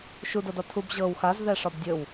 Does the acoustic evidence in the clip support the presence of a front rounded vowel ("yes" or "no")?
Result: no